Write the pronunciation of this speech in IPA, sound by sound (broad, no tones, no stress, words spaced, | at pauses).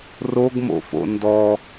roɡmo̰fo̰ ndɔ